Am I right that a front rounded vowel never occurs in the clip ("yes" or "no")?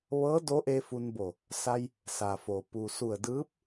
yes